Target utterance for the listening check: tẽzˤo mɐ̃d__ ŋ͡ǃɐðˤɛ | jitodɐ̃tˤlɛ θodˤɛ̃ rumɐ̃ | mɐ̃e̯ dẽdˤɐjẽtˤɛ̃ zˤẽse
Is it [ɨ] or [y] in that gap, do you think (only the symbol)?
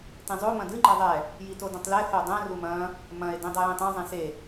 ɨ